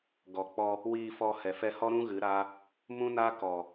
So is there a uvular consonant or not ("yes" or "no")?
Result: no